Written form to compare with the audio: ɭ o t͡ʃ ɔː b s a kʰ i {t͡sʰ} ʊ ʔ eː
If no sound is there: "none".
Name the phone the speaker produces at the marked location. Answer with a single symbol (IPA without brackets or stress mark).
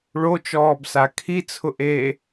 t͡sʰ